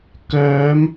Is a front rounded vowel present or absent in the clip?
present